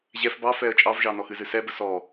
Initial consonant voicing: voiced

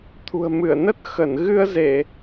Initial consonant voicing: voiceless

